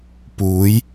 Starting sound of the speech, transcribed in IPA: p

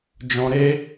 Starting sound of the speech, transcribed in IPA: d͡ʒ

